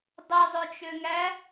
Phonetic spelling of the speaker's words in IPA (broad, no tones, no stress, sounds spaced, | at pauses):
dˤ ɯ zˤ ø t͡ʃ ø ŋ æ